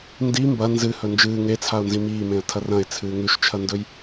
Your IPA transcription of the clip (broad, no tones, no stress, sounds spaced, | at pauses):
n d i m b ɐ n z ɨ h ɵ n d͡ʒ ɨː ŋ e t͡sʰ a ʊ̯ n z ĩ m iː m ẽ ə̯ tʰ ɐ r ɐ̃ ɪ̯ t͡sʰ ɨː ŋ ʉ ʃ t͡ʃʰ ɐ n d ɵ j